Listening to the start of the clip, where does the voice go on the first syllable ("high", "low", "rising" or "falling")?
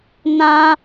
high